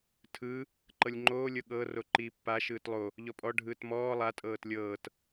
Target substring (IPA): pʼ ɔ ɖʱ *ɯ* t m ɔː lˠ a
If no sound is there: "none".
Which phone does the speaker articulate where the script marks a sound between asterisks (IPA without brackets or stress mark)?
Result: ɯː